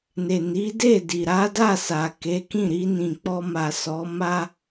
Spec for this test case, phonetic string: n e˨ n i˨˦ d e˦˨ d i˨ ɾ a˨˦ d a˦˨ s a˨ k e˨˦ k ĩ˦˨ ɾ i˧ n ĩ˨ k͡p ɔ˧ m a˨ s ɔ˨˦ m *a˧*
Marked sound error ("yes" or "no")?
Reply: yes